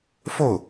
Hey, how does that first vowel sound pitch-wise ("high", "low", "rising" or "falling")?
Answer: falling